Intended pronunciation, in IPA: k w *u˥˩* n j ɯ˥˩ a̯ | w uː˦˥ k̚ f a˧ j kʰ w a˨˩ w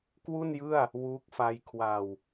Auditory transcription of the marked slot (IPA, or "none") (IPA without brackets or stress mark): u˥˩